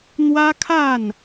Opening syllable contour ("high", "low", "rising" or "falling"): high